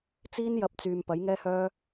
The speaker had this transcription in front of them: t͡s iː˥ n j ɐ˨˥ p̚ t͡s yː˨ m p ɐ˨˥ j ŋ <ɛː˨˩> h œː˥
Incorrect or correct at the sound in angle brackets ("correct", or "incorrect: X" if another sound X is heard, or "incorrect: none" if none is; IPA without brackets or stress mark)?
incorrect: ɛː˥